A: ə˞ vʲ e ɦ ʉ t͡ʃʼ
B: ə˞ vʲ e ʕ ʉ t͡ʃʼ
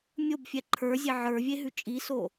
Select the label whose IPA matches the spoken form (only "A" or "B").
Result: A